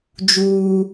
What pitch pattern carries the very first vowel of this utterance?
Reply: high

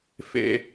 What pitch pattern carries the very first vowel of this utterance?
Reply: low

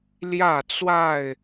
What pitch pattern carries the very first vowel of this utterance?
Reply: falling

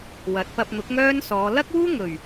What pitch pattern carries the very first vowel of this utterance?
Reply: rising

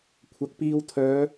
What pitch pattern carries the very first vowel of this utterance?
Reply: rising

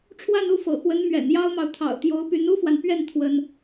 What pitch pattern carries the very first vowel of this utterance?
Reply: falling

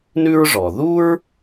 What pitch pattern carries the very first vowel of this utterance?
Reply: high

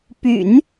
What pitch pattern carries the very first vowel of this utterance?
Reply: low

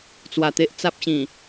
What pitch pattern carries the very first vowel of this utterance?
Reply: low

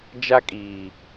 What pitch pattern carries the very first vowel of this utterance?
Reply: high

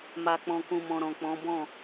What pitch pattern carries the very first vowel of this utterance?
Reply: low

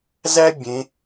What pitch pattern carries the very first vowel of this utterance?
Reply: high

